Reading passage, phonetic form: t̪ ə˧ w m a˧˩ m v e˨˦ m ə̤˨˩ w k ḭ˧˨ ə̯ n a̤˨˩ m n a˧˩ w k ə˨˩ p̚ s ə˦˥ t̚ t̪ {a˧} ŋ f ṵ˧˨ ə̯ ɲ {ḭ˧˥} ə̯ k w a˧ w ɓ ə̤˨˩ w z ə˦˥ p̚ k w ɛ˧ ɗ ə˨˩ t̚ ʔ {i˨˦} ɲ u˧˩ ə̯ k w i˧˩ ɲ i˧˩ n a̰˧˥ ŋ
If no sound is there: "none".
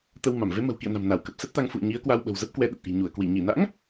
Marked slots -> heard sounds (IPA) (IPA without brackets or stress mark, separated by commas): a˧, i˨˦, i̤˨˩